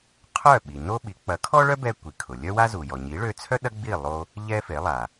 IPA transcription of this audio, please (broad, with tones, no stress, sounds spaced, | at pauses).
qʰ œ˥˩ ɓ i˩ n o˥ ɓ i˩˥ k͡p ɐ˩˥ kʰ ɔ˥ ɭ œ˥ b ɛ˧ kʷ i˩ kʰ ʊ˩ lʲ œ˥ w a˥ z u˩ j ɔ˩ ɲ i˩˥ ɭ ø˧ t͡sʰ œ˥ ɗ ɐ˥ ɡ͡b i˥˩ lˠ o˧ | ʎ ɛ˥ f e˩˥ lˠ a˩